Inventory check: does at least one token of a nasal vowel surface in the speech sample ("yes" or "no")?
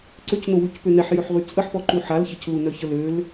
no